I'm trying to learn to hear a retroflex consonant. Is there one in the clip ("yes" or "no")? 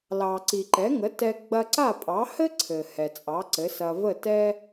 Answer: no